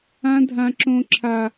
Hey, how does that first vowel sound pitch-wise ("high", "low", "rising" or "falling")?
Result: high